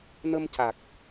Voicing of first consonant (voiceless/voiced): voiced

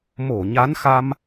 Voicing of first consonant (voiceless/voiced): voiced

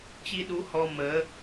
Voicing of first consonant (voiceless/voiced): voiceless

